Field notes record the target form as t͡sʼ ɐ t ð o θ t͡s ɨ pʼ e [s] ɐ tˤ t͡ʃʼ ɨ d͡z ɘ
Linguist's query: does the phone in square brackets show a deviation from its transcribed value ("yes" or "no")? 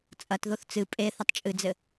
yes